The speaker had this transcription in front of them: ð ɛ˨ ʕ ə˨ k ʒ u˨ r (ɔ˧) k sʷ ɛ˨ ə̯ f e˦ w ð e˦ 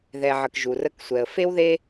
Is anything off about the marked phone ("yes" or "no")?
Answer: yes